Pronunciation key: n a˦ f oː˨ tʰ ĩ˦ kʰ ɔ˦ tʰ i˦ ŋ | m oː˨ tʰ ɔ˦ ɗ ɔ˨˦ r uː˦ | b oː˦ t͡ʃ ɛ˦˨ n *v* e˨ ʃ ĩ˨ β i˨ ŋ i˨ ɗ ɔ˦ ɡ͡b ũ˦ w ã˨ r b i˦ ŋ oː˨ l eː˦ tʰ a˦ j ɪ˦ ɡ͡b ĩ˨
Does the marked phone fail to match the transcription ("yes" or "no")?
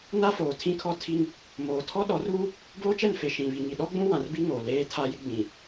yes